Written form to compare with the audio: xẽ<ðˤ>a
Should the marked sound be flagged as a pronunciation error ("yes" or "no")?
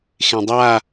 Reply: yes